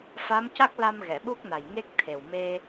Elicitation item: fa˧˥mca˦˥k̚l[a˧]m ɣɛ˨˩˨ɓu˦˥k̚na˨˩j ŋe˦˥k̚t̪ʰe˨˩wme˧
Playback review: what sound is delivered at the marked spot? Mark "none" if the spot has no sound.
a˧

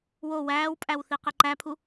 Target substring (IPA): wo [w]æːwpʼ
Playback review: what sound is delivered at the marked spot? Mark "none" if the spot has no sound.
w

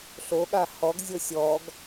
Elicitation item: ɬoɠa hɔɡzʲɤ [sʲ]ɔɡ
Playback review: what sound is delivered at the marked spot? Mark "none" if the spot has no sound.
sʲ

